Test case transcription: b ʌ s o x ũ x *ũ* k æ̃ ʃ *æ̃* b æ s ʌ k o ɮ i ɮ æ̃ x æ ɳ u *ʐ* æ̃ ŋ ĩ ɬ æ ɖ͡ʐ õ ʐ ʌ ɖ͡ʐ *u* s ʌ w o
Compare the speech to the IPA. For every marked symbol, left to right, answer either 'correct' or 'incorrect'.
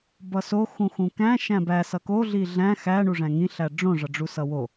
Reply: correct, correct, correct, correct

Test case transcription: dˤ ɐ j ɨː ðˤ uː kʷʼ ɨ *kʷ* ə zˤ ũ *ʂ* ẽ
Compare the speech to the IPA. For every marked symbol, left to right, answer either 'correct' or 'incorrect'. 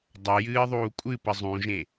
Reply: incorrect, incorrect

